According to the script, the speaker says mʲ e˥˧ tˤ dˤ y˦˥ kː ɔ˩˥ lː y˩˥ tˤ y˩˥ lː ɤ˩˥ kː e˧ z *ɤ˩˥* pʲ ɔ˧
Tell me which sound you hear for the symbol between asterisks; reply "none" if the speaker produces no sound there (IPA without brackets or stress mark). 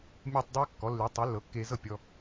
ɤ˥˩